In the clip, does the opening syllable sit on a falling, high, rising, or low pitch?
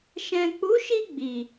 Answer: low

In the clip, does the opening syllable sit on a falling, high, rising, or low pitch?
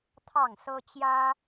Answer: falling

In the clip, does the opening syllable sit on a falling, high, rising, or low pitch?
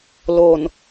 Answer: low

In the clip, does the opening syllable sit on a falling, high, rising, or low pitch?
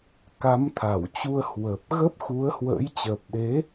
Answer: rising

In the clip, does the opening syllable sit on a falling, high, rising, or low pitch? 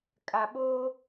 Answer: low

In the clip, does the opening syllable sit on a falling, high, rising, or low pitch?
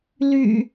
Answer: low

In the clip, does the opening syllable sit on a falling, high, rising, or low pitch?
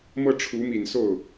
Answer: falling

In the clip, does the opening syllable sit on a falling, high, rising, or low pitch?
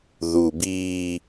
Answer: low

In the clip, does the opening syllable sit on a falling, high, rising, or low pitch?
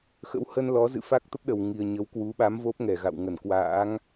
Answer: rising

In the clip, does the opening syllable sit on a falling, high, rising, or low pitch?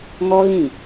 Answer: high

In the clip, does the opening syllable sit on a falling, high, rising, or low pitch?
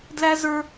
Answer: high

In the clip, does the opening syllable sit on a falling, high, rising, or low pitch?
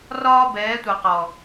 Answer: high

